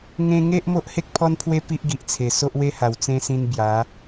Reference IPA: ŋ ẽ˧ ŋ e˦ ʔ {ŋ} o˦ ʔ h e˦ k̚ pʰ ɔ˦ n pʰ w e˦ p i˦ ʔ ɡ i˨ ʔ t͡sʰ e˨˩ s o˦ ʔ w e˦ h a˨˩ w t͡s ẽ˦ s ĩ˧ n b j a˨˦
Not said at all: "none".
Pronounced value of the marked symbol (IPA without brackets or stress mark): m